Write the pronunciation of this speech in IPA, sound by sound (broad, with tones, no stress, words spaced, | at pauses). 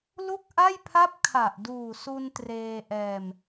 lu˥˩k̚ʔa˥˩jpʰa˥˩p̚ kʰa˨˩ʔ duː˨˩ su˧n treː˧ʔɛː˧m